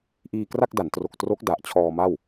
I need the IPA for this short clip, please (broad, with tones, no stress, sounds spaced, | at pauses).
ʔ iː˧ k r a˥˩ k̚ d a˩˦ n t r o˨˩ k̚ t r o˦˥ k̚ d a˨˩ ʔ t͡ɕʰ ɔː˧ m a˥˩ w